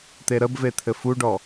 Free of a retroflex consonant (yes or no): no